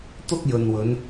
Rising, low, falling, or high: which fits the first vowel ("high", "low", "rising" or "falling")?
high